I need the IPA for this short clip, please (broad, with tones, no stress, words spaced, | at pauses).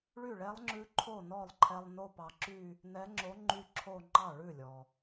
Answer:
ɭy˥˩ɭɛ˧˥lˠŋ͡ǁʉ˧˥ ǃʰo˥˩nɔ˥˩lˠǃʰɛ˧lˠ no˥˧pɑ˧ǁy˥˧ | nɛ˧˥ŋ͡ǁo˧˥ ŋ͡ǃy˥˧ǁʰo˥˧ ŋ͡ǃɑ˥˩ɭʉ˥˩lʲɔ˩